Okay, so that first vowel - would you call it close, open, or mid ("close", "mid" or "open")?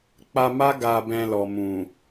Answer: open